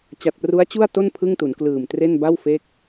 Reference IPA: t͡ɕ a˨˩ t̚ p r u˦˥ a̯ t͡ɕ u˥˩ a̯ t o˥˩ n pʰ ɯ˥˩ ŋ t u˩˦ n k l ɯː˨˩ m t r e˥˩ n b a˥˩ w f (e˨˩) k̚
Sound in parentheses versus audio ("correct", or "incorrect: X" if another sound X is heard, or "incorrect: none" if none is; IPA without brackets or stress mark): incorrect: e˦˥